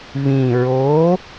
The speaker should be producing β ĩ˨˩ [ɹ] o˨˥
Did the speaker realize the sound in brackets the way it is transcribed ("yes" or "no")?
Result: yes